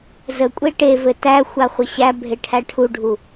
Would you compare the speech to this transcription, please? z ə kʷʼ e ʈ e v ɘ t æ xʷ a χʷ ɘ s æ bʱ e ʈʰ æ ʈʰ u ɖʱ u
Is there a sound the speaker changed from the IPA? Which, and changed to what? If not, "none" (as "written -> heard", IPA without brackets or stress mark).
s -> ɕ